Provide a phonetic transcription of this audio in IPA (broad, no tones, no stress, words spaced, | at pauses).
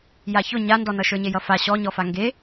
jaçʊ ɲandɔnʌ ʃə˞ɲejʌfa ɕɔɲɔfa ŋɡe